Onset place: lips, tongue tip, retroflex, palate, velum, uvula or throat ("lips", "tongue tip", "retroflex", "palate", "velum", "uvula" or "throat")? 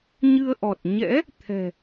palate